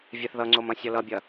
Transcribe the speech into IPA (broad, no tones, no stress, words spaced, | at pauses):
vʲɛθðʌŋ͡ǀom ɐ̃sʲʌlʌbʲɐ